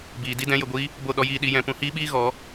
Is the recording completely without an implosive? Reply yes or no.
no